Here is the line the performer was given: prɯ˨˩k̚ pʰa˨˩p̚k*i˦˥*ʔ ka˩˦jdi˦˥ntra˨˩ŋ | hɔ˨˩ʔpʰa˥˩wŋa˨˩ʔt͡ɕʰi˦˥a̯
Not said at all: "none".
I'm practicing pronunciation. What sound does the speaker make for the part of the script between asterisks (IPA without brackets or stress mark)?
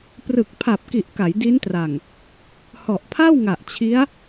i˨˩